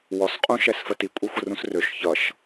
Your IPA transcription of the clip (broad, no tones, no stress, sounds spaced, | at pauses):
w ɔ s qʼ ũ ʃ ɛ s f ə t i kʷʼ i xʷ ə r ũ s r ø ʃ ç ʌ ʃ